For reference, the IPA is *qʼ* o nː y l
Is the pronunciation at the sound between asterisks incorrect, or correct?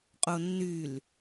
correct